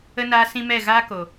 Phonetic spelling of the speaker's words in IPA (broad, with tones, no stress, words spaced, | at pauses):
ə˧naː˧sĩ˧ mɛ˦˨ɣaː˦ko˨